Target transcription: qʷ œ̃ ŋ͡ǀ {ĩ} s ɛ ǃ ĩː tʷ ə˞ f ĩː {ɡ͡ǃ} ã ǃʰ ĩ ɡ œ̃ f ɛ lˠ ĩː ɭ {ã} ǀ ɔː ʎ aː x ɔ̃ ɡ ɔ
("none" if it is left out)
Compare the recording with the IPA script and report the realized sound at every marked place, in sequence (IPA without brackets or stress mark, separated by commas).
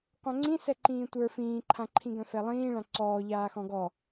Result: ĩ, ǃʰ, ã